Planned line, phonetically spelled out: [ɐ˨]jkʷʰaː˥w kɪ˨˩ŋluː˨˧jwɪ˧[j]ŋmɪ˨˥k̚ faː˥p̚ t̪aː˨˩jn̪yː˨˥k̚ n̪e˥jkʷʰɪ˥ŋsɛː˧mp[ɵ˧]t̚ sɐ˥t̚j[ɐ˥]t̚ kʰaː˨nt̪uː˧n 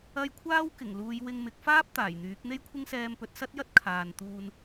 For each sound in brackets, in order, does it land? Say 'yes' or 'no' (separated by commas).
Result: no, no, no, yes